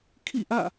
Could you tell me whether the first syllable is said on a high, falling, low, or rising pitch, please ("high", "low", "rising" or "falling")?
falling